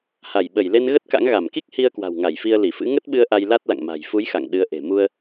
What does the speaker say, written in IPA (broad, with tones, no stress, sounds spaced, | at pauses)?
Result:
h a˧˩ j ɓ ə˧˩ j l e˧ n ɣ ə˦˥ t̚ k a̰˧˥ ŋ ɣ a˧˩ m k i˦˥ k̚ h i˧ ə̯ k w a̤˨˩ w ŋ a˧˩ j f i˧ ə̯ l i˧˩ f ɨ̰˧˥ ŋ ə˦˥ t̚ ɓ ɨ˧ ə̯ ʔ a˧ j l a˦˥ t̚ l a̰˧˨ ŋ m a̤˨˩ j f u˨˦ j x a̰˧˨ ŋ ɗ ɨ˨˦ ə̯ ʔ e̤˨˩ m u˧ ə̯